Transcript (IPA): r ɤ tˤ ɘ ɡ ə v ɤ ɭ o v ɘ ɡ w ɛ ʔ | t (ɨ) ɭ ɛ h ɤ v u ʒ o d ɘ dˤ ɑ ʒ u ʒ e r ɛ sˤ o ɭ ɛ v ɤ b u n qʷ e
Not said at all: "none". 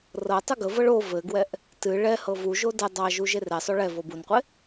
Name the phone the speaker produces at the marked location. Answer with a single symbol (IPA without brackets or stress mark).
ɨ